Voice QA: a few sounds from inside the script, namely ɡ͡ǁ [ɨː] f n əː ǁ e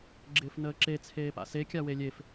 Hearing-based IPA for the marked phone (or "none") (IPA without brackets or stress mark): ɪː